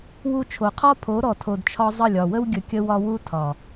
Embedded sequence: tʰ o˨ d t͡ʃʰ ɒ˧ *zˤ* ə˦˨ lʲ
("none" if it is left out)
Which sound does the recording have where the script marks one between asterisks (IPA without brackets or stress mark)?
zˤ